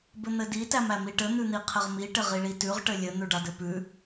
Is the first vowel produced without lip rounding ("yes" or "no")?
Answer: yes